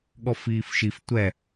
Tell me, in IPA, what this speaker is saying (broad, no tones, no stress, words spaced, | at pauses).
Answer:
ɠɔfiːfʃif tʷɛ